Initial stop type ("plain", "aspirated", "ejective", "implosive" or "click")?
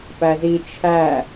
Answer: plain